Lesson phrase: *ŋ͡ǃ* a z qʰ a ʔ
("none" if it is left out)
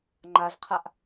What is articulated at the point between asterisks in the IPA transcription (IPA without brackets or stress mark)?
ŋ͡ǃ